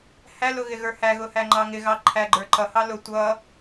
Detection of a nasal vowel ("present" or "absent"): absent